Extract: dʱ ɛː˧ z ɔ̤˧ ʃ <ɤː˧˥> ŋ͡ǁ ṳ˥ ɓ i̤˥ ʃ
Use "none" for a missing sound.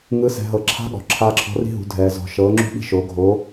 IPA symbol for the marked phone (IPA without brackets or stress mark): ɤː˧˥